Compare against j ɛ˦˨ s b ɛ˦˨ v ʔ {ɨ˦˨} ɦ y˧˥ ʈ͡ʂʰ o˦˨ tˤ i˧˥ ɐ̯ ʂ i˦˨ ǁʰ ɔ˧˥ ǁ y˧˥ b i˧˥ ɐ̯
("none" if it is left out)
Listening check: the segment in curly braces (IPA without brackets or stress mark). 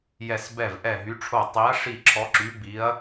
ɛ˦˨